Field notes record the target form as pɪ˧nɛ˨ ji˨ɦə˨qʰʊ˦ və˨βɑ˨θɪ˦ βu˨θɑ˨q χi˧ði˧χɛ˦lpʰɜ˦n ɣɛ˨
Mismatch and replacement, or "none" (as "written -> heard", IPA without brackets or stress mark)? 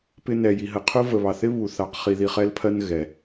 none